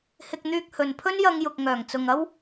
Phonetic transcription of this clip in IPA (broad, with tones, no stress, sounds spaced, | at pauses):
h ɪ˧ k̚ n̪ yː˧ k̚ h ɵ˨ n pʰ ɵ˥ n j ɐ˧ ŋ j ʊ˨ k̚ ŋ œː˨˩ ŋ t͡s ʊ˨ ŋ ɐ˥ w